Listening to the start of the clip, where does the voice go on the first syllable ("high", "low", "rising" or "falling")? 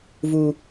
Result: low